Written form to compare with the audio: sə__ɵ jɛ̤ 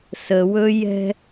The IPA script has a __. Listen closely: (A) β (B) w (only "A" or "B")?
B